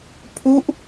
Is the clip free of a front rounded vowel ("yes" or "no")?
yes